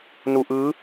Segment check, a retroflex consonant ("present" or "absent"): absent